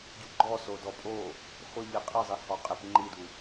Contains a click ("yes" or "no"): yes